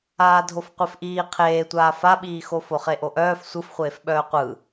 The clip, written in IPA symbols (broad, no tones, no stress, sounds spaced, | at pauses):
aː dʱ o f qʷ e f ʔ iː qʰ eː tʷ aː f a ɓ iː x o f o χ e ʔ o ʔ œː f sʷ ɯ f χʷ eː f ɓ œː qʷ ɯ